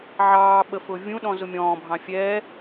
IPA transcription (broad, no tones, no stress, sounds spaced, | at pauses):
ʕ ɑː ɓ ə f ʊː vʲ ũ ɗ ɔ̃ z ʊ mʲ ɔ̃ː bʱ ɑ̃ fʲ ɛː